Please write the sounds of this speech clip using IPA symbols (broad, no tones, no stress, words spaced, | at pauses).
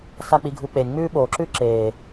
sak͡piɡʱuk͡penʲ ŋ͡mʉːɓoːǁʉː ǁeː